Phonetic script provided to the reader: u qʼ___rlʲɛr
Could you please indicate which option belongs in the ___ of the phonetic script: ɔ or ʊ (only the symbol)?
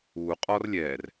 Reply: ɔ